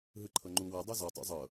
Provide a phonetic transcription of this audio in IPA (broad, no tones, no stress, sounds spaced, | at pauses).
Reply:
ɦ ɯ ǃʰ ɤ ŋ͡ǃ u w ɤ dˤ o z ɔ tˤ o̰ zˤ ɤ